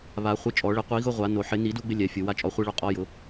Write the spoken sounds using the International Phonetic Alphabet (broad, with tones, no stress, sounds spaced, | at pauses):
β a˨˩˦ χʷ ɪ˧ t͡ʃʼ ɔ˨˩˦ ɭ ɪ˧ qʷ i˨˩˦ ɣ ʊ˧ ʁʷ a˨˩˦ n o˨˩˦ ħ ɪ˨˩˦ n i˨˩˦ d u˧ ɡ͡b ɪ˧ lʲ ɛ˨˩˦ fʲ ʊ˨˩˦ w a˧ t͡ʃʼ ɔ˨˩˦ χʷ i˧ ɭ o˧ qʼ ɔ˧ j ʊ˨˩˦